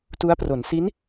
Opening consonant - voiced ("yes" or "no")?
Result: no